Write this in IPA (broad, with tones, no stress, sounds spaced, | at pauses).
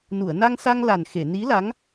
n u˨˩˨ ə̯ n a˧ ŋ s a˧ ŋ l a˨˩ n x e˨˩˨ n i˧˥ l a˧˥ ŋ